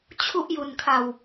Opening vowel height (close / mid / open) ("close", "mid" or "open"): close